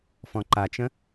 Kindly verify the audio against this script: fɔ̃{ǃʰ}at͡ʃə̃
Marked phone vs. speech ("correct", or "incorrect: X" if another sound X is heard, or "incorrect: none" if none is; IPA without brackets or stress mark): incorrect: ǃ